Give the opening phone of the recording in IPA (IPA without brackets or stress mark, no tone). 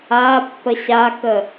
a